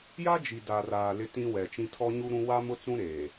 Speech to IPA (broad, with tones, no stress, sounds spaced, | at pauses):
j a˦ d͡ʒ i˨ d a˨ r aː˨ l ɪ˦ t ĩ˦ w ɛ˨ t͡ʃ ĩ˦ tʰ ɔ˦ ɲ u˦ ɾ ũ˦ w a˦ m ʊ˦ t͡s ũ˦ ɾ eː˨